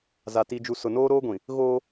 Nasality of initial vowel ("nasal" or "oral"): oral